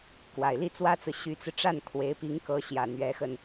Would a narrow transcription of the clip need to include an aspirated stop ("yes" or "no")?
yes